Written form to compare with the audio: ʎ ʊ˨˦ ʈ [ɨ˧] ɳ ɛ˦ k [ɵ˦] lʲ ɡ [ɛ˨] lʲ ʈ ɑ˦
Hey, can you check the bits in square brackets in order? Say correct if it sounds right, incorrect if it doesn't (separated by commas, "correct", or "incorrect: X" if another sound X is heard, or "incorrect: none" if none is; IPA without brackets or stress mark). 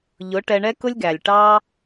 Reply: incorrect: ɛ˧, incorrect: ʊ˦, incorrect: æ˨